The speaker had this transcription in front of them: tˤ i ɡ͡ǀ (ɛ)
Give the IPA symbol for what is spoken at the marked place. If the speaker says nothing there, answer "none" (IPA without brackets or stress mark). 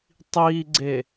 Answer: e